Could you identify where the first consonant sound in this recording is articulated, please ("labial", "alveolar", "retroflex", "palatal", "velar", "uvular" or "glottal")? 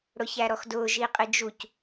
retroflex